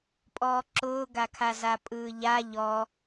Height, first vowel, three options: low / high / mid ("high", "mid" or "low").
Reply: mid